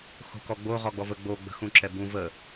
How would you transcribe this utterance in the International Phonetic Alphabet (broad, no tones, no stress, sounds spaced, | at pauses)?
x o̤ k ɔ ɡ͡b o ʁ ɔ ɡ͡b ɔ v ə ɡ͡b o ɡ͡b ə̤ x ũ ǁ ɛ b ũ v ə